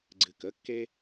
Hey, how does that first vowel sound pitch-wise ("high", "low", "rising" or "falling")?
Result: low